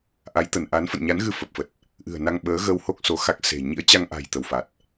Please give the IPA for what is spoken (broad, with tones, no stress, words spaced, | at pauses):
ʔa˨˦jt̪ə˧˩nʔa˨˦n fə̰˧˨nɲa˨˦nɣɨ˧ fə˨˩p̚fə˨˩t̚ | ʔɨ̤˨˩ə̯ na˧ŋɓəː˨˦ɣə˧who˦˥k̚ so˨˦ xa˦˥k̚ se̤˨˩ ɲḭ˧˥ə̯t͡ɕa˧ŋʔa̤˨˩j t̪ə˧˩wfa˨˩t̚